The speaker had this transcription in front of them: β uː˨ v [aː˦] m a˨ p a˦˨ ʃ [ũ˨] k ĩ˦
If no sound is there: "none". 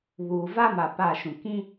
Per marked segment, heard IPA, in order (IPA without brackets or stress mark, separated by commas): a˦, ũ˨